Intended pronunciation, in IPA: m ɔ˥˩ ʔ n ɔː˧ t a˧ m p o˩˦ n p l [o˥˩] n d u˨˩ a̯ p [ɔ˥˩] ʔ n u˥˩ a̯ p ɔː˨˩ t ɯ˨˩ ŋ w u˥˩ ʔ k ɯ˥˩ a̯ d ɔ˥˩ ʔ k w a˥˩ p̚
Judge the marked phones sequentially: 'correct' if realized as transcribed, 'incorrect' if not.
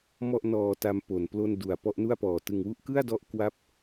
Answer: correct, correct

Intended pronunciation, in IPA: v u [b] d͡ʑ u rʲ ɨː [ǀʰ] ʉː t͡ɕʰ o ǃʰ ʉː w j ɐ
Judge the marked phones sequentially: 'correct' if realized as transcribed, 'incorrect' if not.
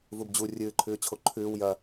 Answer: correct, incorrect: ǃʰ

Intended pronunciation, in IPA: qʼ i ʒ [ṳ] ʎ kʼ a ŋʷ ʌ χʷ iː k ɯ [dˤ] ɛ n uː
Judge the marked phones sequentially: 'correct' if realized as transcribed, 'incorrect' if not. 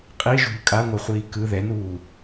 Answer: correct, incorrect: ð

